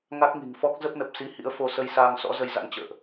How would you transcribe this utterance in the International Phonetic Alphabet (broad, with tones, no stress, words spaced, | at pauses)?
ŋa˦˥k̚ŋi̤˨˩ŋfɔ˦˥k̚ zə˦˥p̚nə˨˩p̚si˨˦ hḭ˧˥ə̯fo˧sə˧jsaː˧ŋ sɔ̰˧˥ zə˧jza̰˧˥n t͡ɕə̰ː˧˨ʔ